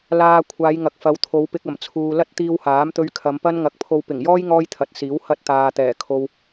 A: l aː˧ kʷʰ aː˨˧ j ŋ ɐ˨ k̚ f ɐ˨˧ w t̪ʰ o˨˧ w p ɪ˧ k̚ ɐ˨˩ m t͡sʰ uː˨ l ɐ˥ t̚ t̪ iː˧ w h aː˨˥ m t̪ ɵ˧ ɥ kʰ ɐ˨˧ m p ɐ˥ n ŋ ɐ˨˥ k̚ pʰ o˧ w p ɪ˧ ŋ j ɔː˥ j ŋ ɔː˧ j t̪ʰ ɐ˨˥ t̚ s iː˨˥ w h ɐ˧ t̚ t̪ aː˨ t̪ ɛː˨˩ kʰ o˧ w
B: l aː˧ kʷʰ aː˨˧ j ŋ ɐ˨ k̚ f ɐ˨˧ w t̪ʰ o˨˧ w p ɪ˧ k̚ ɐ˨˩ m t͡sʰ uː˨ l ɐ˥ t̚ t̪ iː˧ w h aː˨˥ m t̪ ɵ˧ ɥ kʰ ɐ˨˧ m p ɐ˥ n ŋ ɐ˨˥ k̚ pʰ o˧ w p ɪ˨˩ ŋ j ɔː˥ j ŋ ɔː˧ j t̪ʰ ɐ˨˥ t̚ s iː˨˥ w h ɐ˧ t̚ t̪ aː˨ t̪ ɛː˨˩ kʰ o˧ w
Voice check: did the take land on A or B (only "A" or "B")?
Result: B